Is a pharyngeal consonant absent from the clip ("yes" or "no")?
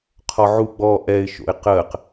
no